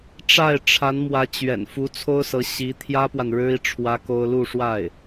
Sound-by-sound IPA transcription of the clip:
ʈ͡ʂ a˥˩ ɪ̯ ʈ͡ʂʰ a˧˥ n m w ä˧˥ t͡ɕ ɥ ɛ̰˨˩ n f u˧˥ t͡sʰ o˥ ʊ̯ s ɤ˧˥ ɕ i˧˥ t̪ʰ j ä˥ p w a˨ n ɻ ɻ̩˥ i˨ ʈ͡ʂʰ w ä˥ k o˥ ʊ̯ l u˥˧ ʂ w a˥˩ ɪ̯

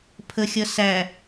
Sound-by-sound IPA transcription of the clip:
pʰ ə xʲ ʌ s æ

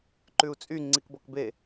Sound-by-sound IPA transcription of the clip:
ǃ ʉ u̯ t͡sʼ y ŋ͡ǀ i k b ɔ k b e

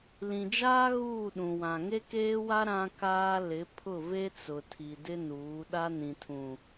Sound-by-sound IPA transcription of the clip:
l ĩ˨ d͡ʒ aː˦ ɣ uː˦˨ ɗ ũ˨ w ã˨ ŋ e˦ k eː˦ w a˦ ɾ ã˨ k aː˨ l ɪ˨˦ pʰ ʊ˦˨ v e˦ t͡s ʊ˨ tʰ i˨ d ɪ˦ n uː˨˦ ɗ a˦ n ĩ˨ tʰ ũ˨

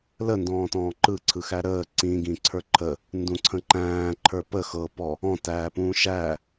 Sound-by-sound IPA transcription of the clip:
l ə n d ɔ̃ː t ɔ̃ː ǃ ɯ ǀʰ ɯ x æ ɾ əː ǀ ĩ ɡ ĩ ǀʰ ə˞ ǃʰ ə | n d ũ ǀʰ ə̃ ǃ æ̃ː ǃʰ ə˞ p ə x ɤ p ɔ | ɔ̃ t æː p ũː ʃ æ

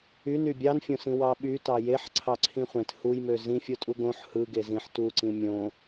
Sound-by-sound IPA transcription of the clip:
y n y bʲ ɑ n fʲ õ s ĩ w ɑ ɓ y t ɑ j e ħ ǀʰ ɑ ǀʰ ĩ χʷ ẽ t h u j m ø z ĩ fʲ o tʼ u ɡ õ ħ h ɯ ɡ e z ĩ ħ t u ǀ ĩ mʲ õ

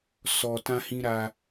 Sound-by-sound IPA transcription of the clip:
s ɔ˨ t ã˦ h ĩ˦ ɾ aː˦

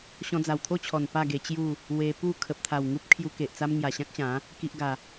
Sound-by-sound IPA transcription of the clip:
ɕ ɔ̃˧ d͡z a˨˩ w t̪ʰ o˥˧ t͡ɕʰ ɔ˨˩ n p a˥˧ ɡ e˧ t͡ɕ j u˥˧ | w e˧ p u˥˧ kʰ ə˨ p̚ t̪ʰ a˨˩ w ŋ u˦ p̚ kʰ j u˧ k e˨ ʔ t͡s a˦ m ŋ j a˨˩ ɕ ã˦ k̚ ɕ ã˨˦ | k i˦ ʔ ɡ a˧

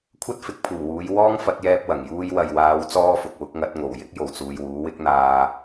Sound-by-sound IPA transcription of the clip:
kʷʰ ɐ˥ t̚ f ɪ˨˥ k̚ pʰ uː˨˩ w uː˨˧ j w ɔː˥ ŋ f ɐ˨˥ t̚ j ɛː˧ p̚ w ɐ˨˩ ŋ j uː˧ j w ɐ˨ j w aː˨˧ w t͡s ɔː˥ f ʊ˨ k̚ w ʊ˨˥ k̚ ŋ ɐ˨˥ t̚ ŋ o˨˩ w j ɪ˥ k̚ j o˨˩ w t͡s uː˨ j w uː˨˥ w ɪ˥ k̚ n̪ aː˧

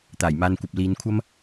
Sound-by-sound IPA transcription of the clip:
t̪ aː˨˩ j m aː˨ n kʷ ɐ˨ p̚ l iː˨˧ n kʷʰ ɐ˥ m

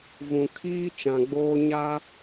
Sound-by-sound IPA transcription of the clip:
v ũ˨ kʰ iː˦ t͡ʃ ã˨ ɡ͡b oː˦ ɲ a˦

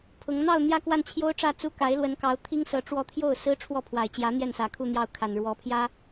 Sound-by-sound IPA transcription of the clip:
pʰ ʊ˧˥ ŋ n̪ ɑ˥˧ ʊ̯ n̪ j ä˥˧ k w a˥˩ n t͡ɕʰ j o˥ ʊ̯ ʈ͡ʂ ä˥˩ t͡s u˥ k a˧˥ ɪ̯ l w ə˧˥ n k ɑ˧˥ ʊ̯ t̪ʰ i˥ ŋ s ɤ˧˥ ʈ͡ʂ w ɔ˥˧ t̪ʰ j o˥˩ ʊ̯ s ɹ̩˥ ʈ͡ʂʰ w ɔ˥˩ pʰ w a˨˩ ɪ̯ t͡ɕ j ä˧˥ n̪ j ɛ˥˩ n s ä˧˥ kʰ u˥˧ n̪ j ɑ˥˩ ʊ̯ kʰ a˨˩ n ɻ w ɔ˧˥ pʰ j ä˥

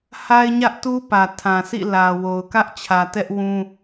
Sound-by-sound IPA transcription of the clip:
h a˦ ɪ̯ ɲ ä˦ ʔ t u˦ p ä˨ tʰ ã˨ s ḭ˦˨ l ä˨ w o˨ ʊ̯ k ä˦ ʔ t͡ɕʰ ä˨ t ɛ˦ ʔ w ũ˦

